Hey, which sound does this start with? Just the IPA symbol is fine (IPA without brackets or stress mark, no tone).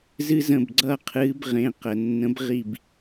z